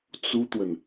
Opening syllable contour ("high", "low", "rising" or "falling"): high